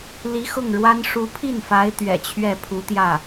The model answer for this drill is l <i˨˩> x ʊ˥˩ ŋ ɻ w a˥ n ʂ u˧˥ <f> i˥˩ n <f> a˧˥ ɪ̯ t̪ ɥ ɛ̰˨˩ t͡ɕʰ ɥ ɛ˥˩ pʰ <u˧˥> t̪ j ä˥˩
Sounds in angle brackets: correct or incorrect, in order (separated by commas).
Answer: incorrect, incorrect, correct, correct